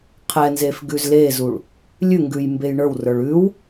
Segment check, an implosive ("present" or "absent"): absent